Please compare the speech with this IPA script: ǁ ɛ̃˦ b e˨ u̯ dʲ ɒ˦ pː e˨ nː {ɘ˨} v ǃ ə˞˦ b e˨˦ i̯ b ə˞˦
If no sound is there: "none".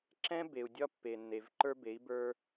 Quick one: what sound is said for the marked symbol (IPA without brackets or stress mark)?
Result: e˨